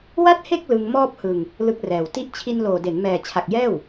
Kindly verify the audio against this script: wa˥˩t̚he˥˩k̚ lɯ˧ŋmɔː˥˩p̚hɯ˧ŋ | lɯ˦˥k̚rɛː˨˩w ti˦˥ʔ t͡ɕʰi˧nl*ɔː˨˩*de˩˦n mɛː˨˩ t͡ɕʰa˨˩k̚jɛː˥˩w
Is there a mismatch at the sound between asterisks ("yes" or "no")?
yes